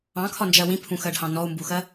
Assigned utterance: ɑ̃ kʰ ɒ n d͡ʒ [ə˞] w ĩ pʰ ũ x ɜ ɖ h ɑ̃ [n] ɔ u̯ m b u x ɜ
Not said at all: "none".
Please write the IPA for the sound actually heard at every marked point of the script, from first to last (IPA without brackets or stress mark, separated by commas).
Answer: ɜ, n